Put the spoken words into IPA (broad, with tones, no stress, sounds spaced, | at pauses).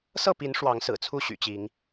s ɤ˥˨ p i˨˦ n ʂ w ɑ˨˦ ŋ s ɹ̩˨˩ t͡sʰ u˥˨ ɕ y̰˨˩ t͡ɕ i˨˦ ŋ